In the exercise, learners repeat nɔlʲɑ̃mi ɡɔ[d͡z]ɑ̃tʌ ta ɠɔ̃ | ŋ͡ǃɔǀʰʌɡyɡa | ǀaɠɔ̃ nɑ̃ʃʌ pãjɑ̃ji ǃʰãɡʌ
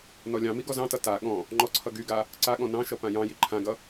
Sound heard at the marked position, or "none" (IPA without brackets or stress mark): z